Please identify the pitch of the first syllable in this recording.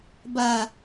low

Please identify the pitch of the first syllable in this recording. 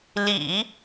low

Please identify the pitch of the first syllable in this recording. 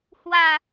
low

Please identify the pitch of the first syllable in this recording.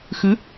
rising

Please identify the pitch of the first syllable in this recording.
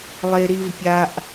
low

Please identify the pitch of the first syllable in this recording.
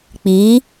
rising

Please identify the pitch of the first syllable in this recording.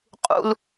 high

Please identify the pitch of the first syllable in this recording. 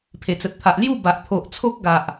low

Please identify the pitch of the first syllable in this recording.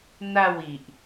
falling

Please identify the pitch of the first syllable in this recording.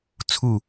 falling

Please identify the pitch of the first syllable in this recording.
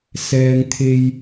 low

